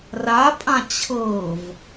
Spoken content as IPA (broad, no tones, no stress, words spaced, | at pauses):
rapʼã t͡ɕʰɤv